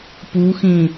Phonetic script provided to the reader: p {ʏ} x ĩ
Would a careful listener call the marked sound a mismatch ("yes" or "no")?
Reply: yes